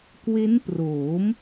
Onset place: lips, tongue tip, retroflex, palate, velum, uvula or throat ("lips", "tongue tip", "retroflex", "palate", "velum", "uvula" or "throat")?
velum